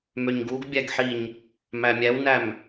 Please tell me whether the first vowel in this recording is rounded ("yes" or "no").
yes